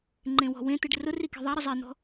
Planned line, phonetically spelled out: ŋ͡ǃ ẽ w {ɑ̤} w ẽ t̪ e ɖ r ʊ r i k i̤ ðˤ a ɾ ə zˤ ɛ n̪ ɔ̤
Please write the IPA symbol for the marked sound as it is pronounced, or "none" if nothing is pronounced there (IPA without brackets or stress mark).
ɔ̤